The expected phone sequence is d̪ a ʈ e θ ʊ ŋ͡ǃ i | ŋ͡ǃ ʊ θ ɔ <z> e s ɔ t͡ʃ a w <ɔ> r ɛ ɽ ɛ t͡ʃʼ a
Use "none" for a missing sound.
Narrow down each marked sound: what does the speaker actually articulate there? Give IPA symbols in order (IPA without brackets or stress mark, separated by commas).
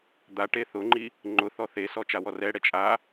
θ, ɔ